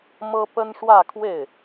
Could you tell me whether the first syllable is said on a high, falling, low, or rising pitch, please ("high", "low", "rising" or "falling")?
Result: high